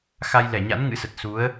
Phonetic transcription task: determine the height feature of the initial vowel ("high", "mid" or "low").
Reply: low